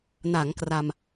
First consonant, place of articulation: alveolar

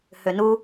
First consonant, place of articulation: glottal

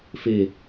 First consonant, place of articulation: labial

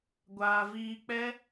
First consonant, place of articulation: velar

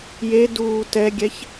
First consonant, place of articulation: palatal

